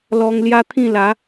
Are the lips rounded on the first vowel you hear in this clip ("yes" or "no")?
yes